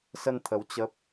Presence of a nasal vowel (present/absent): absent